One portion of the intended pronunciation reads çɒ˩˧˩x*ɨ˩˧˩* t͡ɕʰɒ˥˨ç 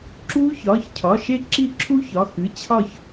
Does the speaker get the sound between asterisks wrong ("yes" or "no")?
no